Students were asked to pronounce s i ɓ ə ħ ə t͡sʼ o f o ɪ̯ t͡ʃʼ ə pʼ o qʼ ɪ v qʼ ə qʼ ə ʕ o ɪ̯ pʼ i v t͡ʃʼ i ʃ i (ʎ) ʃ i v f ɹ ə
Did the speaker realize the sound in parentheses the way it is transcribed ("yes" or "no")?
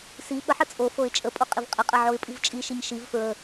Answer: no